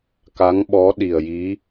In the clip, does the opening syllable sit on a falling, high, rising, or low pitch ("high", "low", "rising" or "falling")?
rising